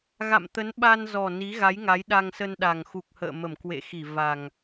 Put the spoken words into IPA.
ɣa̰˧˨mt̪ə˨˦n ɓa˧nzɔ˨˩ ni˨˦ɣa˨˦jŋa˨˦j ɗa˧ŋsə˧nɗa˨˩ŋ xu˨˩k̚hə̰ː˧˨mə˧˩m kwḛ˧˨xi˧˩ va˨˩ŋ

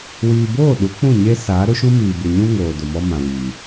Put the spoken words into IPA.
wiː˨boː˦˨ ɗu˨˦k͡pũ˦˨ ɲe˦saː˨˦ ɾʊ˦ʃũ˦miː˨ bɪ˨ɲũ˦ ŋoː˨ do˨mɔ˦mã˨wiː˨

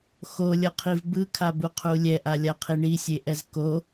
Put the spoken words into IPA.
xolʲʌqʰiv bɯkʰabuqʰu lʲɛʔalʲaqʰi ɳisʲeʔɛz ko

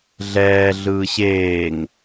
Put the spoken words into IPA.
ɮɛː ɮɯːɕeːŋ

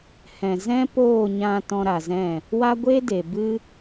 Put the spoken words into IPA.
hɛ̃˨ zɛ̃˦poː˦˨ ɲã˧ tɔ̃˧ɾa˨zɛ̃˦˨ | wa˦ɡʷeː˦de˨bɨ˦

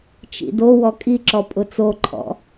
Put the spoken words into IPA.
t͡ʃḭdo wɔkʼiǁɔ pʼʊt͡soǃʰɔ̰

